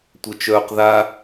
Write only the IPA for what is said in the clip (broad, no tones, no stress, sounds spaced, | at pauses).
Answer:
tʷ œ t͡ʃ œː q ð a